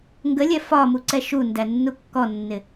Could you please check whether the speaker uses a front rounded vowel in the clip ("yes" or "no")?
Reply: no